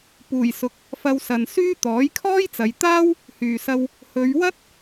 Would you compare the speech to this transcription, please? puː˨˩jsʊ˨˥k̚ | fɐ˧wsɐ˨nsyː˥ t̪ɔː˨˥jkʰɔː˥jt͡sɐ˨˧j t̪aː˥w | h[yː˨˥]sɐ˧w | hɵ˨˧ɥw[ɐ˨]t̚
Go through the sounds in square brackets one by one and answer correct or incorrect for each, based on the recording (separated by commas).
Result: incorrect, incorrect